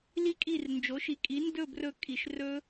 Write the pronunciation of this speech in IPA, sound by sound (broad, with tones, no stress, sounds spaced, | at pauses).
l i˦˥ kʼ i˦˨ r n d͡ʒ o˩˥ ʃ i˩˥ kʼ i˩˥ n d ɵ˦˨ b r ɵ˦˨ kʼ i˩ ʃ r ɵ˦˥